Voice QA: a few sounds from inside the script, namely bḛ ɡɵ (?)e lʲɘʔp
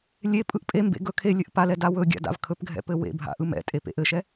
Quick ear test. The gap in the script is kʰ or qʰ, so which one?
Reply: kʰ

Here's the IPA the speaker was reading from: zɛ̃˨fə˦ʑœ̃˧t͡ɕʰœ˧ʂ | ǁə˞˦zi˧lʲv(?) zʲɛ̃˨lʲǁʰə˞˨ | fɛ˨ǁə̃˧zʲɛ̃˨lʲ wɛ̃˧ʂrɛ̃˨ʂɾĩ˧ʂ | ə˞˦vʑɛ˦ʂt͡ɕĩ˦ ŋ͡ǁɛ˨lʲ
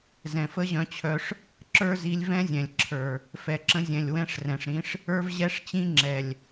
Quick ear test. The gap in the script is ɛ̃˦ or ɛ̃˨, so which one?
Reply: ɛ̃˦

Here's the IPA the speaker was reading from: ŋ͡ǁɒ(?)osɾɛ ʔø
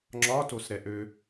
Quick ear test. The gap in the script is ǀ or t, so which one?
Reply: t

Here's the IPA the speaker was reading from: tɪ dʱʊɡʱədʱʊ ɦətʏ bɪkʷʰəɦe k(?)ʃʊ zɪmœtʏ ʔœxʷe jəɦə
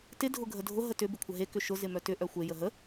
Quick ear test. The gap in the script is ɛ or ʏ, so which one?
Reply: ʏ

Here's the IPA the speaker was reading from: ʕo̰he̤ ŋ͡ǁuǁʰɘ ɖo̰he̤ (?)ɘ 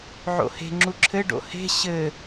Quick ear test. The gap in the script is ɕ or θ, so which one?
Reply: ɕ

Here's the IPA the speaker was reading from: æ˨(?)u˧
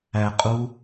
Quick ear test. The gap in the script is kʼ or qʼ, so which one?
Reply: qʼ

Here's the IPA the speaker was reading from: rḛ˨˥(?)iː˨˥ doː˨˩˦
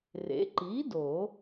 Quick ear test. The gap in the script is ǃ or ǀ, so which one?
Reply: ǃ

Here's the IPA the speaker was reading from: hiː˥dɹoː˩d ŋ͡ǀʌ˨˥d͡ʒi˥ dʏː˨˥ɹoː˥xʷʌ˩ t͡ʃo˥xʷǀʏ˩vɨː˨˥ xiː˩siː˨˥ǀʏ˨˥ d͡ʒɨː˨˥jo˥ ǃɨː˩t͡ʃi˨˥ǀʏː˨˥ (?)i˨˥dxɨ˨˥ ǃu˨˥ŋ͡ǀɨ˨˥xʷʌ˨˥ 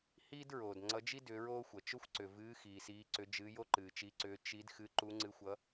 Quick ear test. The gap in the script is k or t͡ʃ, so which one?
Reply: t͡ʃ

